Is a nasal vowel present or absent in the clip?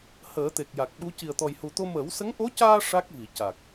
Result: absent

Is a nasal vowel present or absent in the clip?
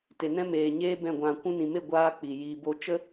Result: present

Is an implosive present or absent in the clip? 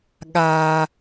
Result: present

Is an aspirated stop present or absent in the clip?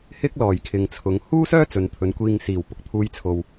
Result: present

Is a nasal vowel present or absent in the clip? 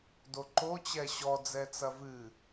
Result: absent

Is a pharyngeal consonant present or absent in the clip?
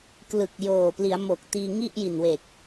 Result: absent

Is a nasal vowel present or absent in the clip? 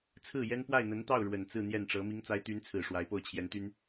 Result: absent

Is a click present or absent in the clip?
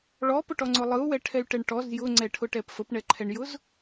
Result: present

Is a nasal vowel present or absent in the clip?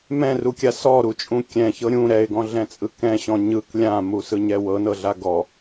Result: present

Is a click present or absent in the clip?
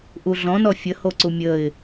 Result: present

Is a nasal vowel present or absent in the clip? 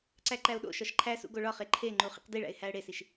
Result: absent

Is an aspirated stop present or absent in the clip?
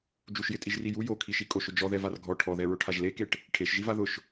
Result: present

